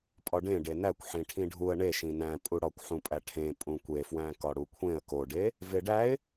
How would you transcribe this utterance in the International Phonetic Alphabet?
pʼɒɖẽ ɖenækʷħĩ ʈʰĩɖʱuə̯ ɳeʃĩ næ̃pʼu ɽɒkʷħũpʼæ ʈʰẽ pʼũkʷefwæ̃ kɒɽukʷʰẽə̯ koɖe | veɖæɪ̯

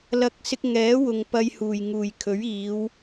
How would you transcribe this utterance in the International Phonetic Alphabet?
lɐ˧k̚ sɪ˧k̚ŋɛː˨˥wʊ˨ŋ pɐ˧jhuː˨˩jŋuː˨˩jkʰɵ˨˥ɥ iː˨˧w

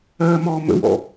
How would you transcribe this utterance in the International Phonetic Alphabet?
ɜːmɔːmə̰wɔ̰

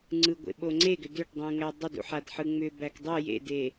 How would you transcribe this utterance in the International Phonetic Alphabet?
ŋ͡ǀɯɡʷḛ ɓoŋ͡ǀeɡʏ dʏʈdˤũŋæ dˤʏdṵħad ħɯŋ͡mʏbæk dˤɯ jḛde

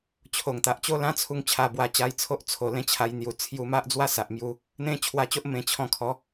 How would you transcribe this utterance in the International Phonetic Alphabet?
t͡ɕʰo˨˩ŋt̪a˨ʔt͡ɕo˦ lã˦t͡sʰu˧ŋ t͡ɕʰa˧bwa˧t͡ɕa˧jt͡sʰo˦ʔ t͡sʰo˨˩lẽ˧ t͡ɕʰa˧jn̪ju˨˩t͡sʰju˧ma˦ʔ d͡zwa˦sa˨ʔmju˧ | n̪ẽ˦ t͡ɕʰwa˧t͡ɕo˦ʔ mẽ˧ t͡ɕʰɔ̃˧kʰɔ˨˦

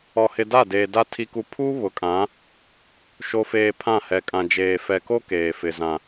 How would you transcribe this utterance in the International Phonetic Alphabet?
ɔ˨hɪ˨ da˦˨deː˨ da˦ tʰi˦ku˦ pʰu˦ βʊ˨kʼã˨˦ | ʃo˨feː˨ pʰã˦˨hɛ˨ kʼã˨d͡ʒeː˨ fɛ˨ko˦ keː˨fɪ˨ zã˨

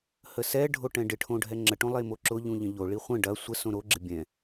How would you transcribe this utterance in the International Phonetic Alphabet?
həsɛɖʱo ʈɛ̃ɖɪʈʰõ ɖʱɛŋ͡ǁəʈõ lˠemoǁʊʎũ ʎə̃ʎoɭi χʷə̃ ɖɐ sʷəsõ ɾoɡ͡ǁɪ bʲɛ̃

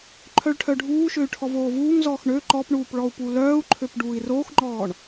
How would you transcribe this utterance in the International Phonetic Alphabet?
ǃʰœɭʈʰœɖʱuːʃøy̯ ʈʰɔvoːvuːŋzɔːx ɳø ǃɔpɳuːp ɭɔu̯pulœːu̯ǃʰøp ɖuːi̯roːxŋ͡ǃɔːɳ

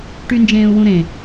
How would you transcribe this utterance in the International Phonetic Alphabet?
ʈynd͡ʒẽːu̯wũɾẽ

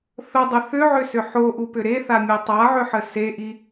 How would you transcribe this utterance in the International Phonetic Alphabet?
θədˤə θʏʕʏsʏ ħoʔupʏ ɾeθamʲe tˤaʕʏħə seʔi

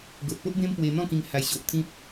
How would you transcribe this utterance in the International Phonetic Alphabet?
ɡo˨t̚po˦ʔbẽ˦m pwe˧n̪ɔ̃˥˧kĩ˧ŋ ha˧jɕo˨ʔt̪ʰĩ˦p̚

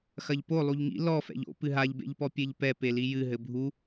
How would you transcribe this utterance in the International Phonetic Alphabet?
xɐʎpo lˠuʎŋḭ lɔ fɛ̰ʎo̰ pɨɦaʎbḛʎpɔ pʲeʎpɛ pelijɨ ɦɘbʱu

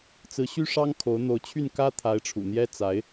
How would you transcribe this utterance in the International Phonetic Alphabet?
t͡sɹ̩˧˥ɕy˥ʂɑ˥ŋ kʰo˧˥ʊ̯ n̪o˧˥ʊ̯t͡ɕʰy˥˩n kä˥t̪ʰa˧˥ɪ̯ʈ͡ʂʰṵ˨˩ n̪jɛ˥t͡sa˧˥ɪ̯

